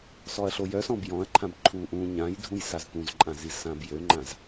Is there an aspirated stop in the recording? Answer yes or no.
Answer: yes